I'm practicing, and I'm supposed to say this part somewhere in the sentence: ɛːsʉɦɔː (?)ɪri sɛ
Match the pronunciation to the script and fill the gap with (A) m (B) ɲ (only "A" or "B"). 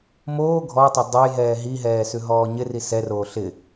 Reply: B